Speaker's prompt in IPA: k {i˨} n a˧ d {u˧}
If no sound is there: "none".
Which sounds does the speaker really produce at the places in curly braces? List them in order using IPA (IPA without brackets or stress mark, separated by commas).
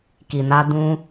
i˨, ũ˧